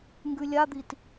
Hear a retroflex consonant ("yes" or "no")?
no